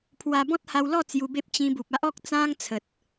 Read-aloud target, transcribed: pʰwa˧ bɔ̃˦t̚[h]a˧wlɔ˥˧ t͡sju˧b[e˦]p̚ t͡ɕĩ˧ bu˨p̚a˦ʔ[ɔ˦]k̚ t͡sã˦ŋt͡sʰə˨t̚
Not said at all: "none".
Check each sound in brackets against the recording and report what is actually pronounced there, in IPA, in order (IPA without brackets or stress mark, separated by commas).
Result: h, e˦, ɔ˦